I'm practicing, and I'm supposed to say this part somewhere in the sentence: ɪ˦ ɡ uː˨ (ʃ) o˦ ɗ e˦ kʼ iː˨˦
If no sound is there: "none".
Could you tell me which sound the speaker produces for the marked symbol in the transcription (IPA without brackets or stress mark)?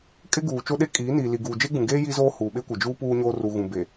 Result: t͡ʃ